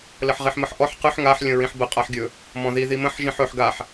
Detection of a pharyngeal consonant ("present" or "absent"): present